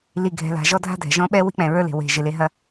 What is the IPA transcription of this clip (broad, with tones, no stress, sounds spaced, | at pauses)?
l i˨ ɡʱ ɛ̤˨ l a̤˨ ʒ ɔ˦ dʱ a̤˦ dʱ ɛ̤˨ ʒ ɔ̃˦ ɓ ɛ˦ w i̤˦ k͡p ɛ̃˨ ɹ ə˞˦ l e̤˨ w e̤˨ ʒ ɪ˨ l e˦ ɦ ɐ˦